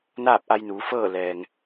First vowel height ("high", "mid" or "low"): low